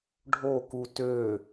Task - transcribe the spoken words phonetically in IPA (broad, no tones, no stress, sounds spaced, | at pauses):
ɖʱ o k u t ø